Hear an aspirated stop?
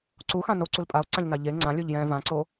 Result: no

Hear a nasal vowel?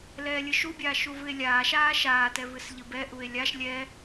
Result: no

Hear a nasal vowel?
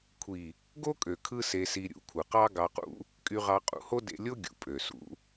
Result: no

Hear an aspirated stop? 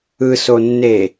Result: no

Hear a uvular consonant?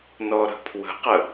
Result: yes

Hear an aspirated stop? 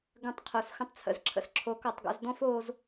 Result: yes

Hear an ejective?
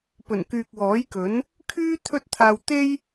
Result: no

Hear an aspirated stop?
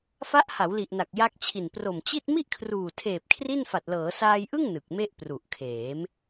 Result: yes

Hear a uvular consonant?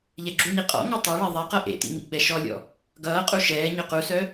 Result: yes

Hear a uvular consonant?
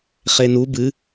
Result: yes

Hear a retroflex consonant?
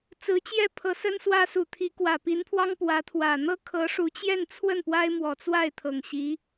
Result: yes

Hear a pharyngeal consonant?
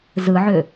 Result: yes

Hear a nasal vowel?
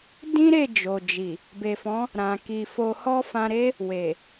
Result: yes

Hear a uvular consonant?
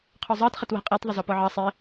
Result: yes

